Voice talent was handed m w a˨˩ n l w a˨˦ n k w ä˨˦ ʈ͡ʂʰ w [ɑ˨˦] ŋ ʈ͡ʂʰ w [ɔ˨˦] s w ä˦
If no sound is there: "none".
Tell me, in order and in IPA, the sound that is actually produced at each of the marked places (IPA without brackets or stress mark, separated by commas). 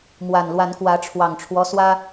ɑ˨˩, ɔ˦